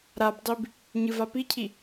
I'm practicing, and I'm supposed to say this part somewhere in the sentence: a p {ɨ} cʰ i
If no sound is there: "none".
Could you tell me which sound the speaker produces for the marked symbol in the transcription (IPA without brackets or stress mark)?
i